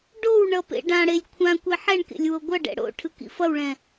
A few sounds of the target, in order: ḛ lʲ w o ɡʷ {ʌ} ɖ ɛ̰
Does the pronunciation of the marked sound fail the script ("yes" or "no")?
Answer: no